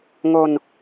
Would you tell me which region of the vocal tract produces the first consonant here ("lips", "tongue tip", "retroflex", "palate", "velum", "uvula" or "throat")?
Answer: velum